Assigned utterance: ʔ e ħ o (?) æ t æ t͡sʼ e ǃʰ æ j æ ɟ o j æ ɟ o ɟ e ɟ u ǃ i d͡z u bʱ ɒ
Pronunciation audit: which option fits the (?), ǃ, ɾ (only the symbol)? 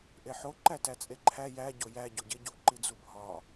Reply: ǃ